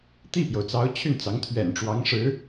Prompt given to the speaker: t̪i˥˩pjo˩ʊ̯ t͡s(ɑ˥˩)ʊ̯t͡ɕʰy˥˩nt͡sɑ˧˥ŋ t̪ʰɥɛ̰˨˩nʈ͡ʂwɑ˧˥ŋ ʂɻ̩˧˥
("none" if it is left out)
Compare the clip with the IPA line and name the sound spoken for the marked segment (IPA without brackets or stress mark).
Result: ɑ˧˥